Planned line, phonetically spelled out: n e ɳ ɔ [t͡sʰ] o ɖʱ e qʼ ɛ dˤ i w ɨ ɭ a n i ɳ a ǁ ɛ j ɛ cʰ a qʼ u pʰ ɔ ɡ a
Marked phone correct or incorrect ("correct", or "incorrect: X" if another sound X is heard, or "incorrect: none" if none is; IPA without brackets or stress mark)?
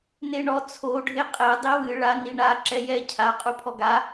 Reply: correct